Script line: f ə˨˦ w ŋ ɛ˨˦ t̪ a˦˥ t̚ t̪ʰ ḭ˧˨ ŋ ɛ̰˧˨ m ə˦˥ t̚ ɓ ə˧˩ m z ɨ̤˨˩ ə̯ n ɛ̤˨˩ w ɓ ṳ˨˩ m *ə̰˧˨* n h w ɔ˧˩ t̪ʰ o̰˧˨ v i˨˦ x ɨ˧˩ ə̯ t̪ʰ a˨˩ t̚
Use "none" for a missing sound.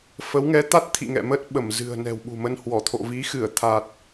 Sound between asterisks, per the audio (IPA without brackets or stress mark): ə˧